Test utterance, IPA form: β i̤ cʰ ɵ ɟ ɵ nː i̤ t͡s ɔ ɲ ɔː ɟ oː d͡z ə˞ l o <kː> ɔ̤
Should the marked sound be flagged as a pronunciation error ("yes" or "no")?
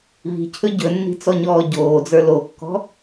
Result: no